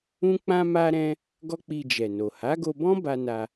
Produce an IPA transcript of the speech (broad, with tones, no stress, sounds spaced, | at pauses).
ũ˦ k͡p ã˦ m a˦ ɾ ɛ̃˦ | ɡ ɔ˦ k͡p i˧ d͡ʒ ɛ˨ n o˨ h a˨˦ ɡ o˧ b ɔ̃˦ b a˧ n a˧